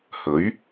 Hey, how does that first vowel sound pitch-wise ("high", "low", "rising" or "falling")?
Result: rising